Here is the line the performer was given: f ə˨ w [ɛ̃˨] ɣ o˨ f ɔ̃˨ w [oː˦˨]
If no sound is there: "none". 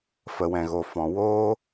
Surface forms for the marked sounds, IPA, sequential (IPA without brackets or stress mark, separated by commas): ɛ̃˨, oː˦